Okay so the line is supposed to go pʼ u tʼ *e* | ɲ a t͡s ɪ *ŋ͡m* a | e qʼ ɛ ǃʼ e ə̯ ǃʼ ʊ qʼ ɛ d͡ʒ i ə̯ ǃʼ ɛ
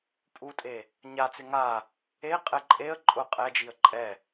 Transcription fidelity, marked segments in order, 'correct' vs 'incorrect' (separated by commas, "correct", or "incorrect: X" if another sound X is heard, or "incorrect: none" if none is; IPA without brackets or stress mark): correct, incorrect: ŋ